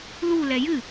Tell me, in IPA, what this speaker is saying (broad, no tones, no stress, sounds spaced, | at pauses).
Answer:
l u l ɛ j ɨ